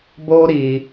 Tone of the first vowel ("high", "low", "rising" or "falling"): high